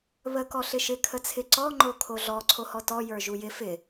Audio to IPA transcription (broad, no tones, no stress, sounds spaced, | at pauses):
β ə k ɔ ɬ ɪ ʃ ɪ kʰ ə t͡sʰ ɪ ǀ ɔ ŋ͡ǃ o kʰ o ɮ ɔ ǀʰ o h ɔ t ɔ j ə˞ ʒ u j ɪ f ɪ